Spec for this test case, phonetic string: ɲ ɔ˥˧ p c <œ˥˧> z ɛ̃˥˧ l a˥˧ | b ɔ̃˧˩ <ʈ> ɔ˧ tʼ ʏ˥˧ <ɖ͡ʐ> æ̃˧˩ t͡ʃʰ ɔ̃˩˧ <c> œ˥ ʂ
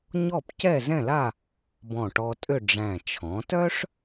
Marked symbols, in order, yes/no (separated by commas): no, yes, yes, no